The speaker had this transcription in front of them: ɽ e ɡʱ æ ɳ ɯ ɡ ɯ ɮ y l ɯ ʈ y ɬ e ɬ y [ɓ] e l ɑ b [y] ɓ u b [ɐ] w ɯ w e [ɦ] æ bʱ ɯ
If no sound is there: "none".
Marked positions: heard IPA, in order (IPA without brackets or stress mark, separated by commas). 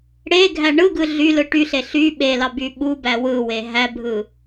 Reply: ɓ, y, æ, ɦ